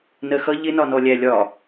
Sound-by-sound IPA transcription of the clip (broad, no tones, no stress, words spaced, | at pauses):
nɜxʌ ʎɪnɒnɔ lʲælʲɒ